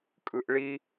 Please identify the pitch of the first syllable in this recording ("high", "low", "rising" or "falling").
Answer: high